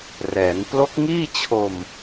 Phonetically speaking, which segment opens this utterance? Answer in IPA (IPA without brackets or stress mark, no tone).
r